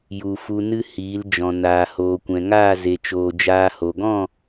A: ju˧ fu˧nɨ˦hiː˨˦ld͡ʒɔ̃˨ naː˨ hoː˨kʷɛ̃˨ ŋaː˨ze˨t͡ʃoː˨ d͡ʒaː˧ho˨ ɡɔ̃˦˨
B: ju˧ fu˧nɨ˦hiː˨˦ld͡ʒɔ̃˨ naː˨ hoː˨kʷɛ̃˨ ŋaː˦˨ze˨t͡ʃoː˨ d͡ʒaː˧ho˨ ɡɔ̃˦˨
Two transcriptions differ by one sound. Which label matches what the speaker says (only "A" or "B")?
B